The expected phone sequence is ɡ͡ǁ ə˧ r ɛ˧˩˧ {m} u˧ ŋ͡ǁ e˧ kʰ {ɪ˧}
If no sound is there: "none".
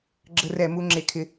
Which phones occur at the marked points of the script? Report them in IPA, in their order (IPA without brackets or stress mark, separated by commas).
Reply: m, ɪ˧